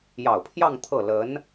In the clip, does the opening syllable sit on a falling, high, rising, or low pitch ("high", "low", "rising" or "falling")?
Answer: low